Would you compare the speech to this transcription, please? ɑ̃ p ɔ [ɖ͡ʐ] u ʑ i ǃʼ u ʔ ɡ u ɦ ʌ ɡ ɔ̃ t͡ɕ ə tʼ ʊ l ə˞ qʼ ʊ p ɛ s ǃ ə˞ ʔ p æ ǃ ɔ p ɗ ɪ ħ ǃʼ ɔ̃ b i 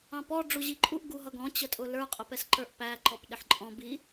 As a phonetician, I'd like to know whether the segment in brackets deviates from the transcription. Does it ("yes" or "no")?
no